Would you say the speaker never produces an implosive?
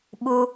no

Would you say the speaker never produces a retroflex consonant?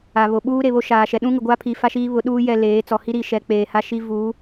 yes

